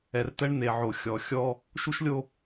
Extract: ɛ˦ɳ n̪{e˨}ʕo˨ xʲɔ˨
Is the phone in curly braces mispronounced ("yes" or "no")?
no